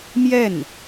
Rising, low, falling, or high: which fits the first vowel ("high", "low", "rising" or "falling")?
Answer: falling